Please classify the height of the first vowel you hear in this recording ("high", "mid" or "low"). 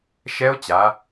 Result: mid